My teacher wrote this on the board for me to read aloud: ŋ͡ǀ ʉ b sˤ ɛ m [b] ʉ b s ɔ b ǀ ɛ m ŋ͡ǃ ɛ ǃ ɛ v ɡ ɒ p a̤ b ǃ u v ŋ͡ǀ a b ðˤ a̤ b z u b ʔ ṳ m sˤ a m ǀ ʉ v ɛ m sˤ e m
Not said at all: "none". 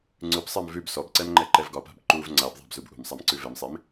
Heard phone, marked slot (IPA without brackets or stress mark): v